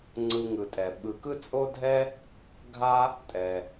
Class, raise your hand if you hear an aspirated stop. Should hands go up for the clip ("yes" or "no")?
no